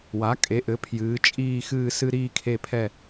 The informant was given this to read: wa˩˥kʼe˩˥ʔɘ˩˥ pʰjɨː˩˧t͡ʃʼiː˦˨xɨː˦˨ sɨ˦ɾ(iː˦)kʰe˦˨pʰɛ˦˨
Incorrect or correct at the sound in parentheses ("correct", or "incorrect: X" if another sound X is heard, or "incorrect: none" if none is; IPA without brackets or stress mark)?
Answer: correct